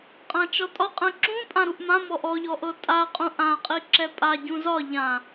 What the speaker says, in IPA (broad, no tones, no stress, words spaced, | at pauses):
qʼãt͡ʃɔtʼɒqʼɛ̃ ǁũ pʼãɾuʔmãmɔʔ ɔʎɔ ʔɤtʼaqʼũ ʔãqʼi ǁɛpʼaɟũ zɒ ʎã